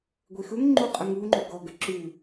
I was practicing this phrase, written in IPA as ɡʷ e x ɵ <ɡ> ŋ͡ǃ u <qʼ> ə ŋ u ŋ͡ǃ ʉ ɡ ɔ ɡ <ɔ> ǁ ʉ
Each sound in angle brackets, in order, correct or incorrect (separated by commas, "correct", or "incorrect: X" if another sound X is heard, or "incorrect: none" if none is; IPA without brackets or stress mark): incorrect: ŋ, correct, incorrect: ə